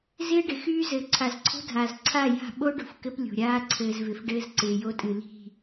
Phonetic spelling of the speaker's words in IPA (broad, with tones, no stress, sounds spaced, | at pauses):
z ɪː˦ ɖ ɪ˨ x yː˦ z ɘː˨ ǀʰ a˨ z ǀʰ o̤˦ dʱ aː˨ z ǀʰ a˦˨ j a̤˦˨ ɓ o˦ ɖ o̤˨ f k ɘ˦ p lʲ o̤˨ ɾʲ aː˦ ǀʰ ɘː˨ z v ɪ˨ f ɖ ɘː˦ z ǀ ɪː˨ j o˦ tʼ ɨ˨ l i̤˦˨